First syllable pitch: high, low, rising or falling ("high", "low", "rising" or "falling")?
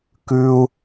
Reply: high